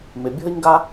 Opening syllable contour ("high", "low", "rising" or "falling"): low